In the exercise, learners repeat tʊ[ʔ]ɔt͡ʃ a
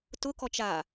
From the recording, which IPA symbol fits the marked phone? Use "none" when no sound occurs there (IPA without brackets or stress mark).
k